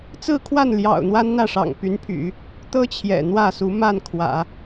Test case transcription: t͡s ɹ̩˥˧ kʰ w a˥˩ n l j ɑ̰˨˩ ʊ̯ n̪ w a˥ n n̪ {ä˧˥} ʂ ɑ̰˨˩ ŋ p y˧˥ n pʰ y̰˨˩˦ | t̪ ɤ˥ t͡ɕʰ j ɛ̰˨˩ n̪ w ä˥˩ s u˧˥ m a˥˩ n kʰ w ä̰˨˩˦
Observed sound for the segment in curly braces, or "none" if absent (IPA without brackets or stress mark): ä˥˩